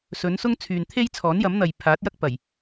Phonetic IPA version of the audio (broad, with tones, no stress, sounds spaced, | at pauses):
s ɵ˨˧ n s ʊ˥ ŋ t͡sʰ yː˨ n t̪ʰ e˥ j t͡sʰ ɔː˨˥ n j ɐ˨˥ m n̪ ɐ˨ j pʰ aː˨˥ t̚ j ɐ˥ k̚ p ɐ˨˩ j